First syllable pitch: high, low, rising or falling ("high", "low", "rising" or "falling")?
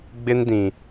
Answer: high